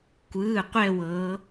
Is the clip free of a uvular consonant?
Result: no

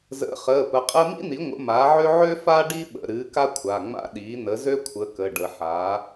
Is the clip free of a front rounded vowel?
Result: no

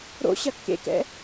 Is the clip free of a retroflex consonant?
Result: yes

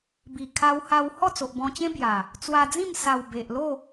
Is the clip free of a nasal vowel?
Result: no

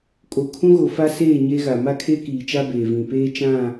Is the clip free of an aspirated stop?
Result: no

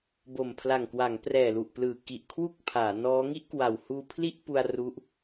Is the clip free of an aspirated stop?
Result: no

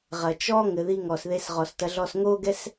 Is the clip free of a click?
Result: yes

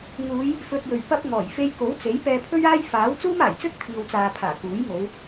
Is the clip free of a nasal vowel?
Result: yes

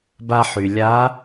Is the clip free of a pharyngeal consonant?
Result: no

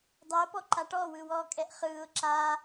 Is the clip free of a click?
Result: no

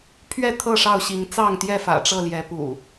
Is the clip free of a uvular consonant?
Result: yes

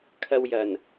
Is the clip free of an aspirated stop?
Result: no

